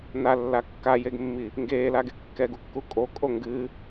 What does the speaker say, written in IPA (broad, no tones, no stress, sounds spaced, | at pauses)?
n a lː a kː a j e ɡ mː i | ŋ ɡ eː l a ɡ e kː ɛ ɡ u kː u kʼ o kʼ o ŋ ɡ ɨ